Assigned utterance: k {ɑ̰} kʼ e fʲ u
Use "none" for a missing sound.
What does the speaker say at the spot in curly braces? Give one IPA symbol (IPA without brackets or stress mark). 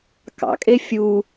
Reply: ɑ̰